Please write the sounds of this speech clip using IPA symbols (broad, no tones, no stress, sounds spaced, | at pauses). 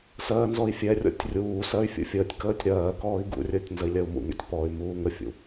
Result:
s ɜː n z ɔ i̯ fʲ ɛ rʲ ɔ̰ tʲ rʲ uː s ɜ y̯ fʲ ṵ fʲ əː tʲ k əː tʲ ɾ ɜː k ɔː i̯ ɡ ṵ rʲ əː tʲ n z ə i̯ lʲ ɜ u̯ m ṵ ŋ ɛ̰ tʲ p ɔ y̯ m uː ŋ ə fʲ ṵ